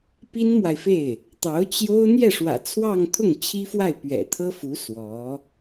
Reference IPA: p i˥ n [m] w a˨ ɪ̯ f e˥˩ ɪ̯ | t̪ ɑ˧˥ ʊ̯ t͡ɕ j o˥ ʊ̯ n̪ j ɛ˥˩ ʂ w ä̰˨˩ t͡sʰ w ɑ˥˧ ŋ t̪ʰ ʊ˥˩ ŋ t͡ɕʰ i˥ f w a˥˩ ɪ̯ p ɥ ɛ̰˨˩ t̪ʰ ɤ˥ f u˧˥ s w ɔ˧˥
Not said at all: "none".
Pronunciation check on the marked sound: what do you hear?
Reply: m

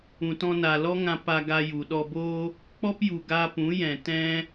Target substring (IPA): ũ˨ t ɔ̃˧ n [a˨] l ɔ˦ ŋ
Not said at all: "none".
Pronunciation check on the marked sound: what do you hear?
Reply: a˨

